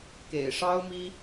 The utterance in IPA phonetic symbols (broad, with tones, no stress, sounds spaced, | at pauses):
k ḛ˨˩ ɪ̯ ʂ ɑ˥ ʊ̯ m i˥